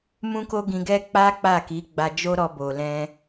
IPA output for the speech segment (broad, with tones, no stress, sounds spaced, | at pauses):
m ũ˦ k o˦ ɡ ĩ˧ ɡ ɛ˦ k͡p a˦ k͡p a˦˨ k i˨˦ ɡ͡b a˧ d͡ʒ o˦ ɾ ɔ˧ b o˨ l ɛ̃˧